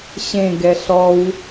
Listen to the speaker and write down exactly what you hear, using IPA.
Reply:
ɕ ẽ ɡ ɛ ɬ ɔ w

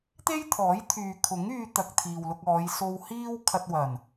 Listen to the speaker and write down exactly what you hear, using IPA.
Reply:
t̪ e˥ j t̪ʰ ɔː˨˥ j t̪ʰ yː˨ kʰ ʊ˨˥ ŋ yː˧ t̪ ɐ˨ k̚ t̪ʰ iː˨ w l ʊ˧ k̚ ɔː˨˧ j s o˧ w h iː˥ w kʰ ɐ˧ t̚ w ɐ˨˩ n

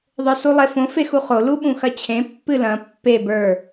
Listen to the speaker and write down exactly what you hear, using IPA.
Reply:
ðˤ ə˞ s u lˠ e f õ f e x u χ o l u ɓ ũ x ɐ t͡ɕʰ ẽ pː ɨ l ɐ̃ pː e b ə˞

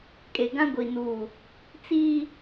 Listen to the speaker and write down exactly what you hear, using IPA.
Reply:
kʼ e˨ ɡ ã˦ ɡʷ i˨ n uː˨ | t͡s iː˦

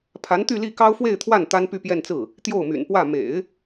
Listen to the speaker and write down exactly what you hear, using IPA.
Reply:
pʰ a˧˥ n t̪ y˥˧ l i˥˩ k ɑ˥ ʊ̯ f w e˥˧ ɪ̯ t̪ʰ w a˥˩ n t̪ a˥ n p y˥˧ p j ɛ˥˧ n t͡s ɹ̩˥˩ | t̪ j o˥˩ ʊ̯ m y̰˨˩ n p w ä˥˩ m ḛ˨˩˦ ɪ̯

